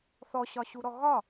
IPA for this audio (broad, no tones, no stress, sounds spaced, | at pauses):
θ ɔ ɕ ɒ ɕ u ɾ ɔ ɣ ɒ